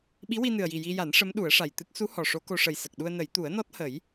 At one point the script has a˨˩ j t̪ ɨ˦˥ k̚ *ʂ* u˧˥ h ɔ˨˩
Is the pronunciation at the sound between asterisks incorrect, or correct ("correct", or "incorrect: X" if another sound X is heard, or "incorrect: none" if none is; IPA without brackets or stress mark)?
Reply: incorrect: s